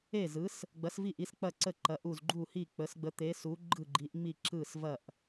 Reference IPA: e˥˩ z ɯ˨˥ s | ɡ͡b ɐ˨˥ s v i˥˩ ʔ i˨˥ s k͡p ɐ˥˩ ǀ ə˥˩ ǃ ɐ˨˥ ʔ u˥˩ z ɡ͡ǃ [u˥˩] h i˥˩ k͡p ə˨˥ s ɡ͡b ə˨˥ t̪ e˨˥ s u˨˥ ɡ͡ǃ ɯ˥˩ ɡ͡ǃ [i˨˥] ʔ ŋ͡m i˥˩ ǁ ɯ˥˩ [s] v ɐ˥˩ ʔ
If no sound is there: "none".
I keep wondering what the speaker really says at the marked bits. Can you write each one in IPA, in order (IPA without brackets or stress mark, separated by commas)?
u˥˩, i˨˥, s